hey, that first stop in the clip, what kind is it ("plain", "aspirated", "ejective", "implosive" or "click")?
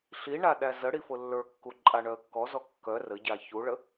implosive